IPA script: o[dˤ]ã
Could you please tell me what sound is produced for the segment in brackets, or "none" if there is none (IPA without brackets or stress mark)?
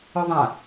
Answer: ðˤ